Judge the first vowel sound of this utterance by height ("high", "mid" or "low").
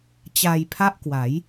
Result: low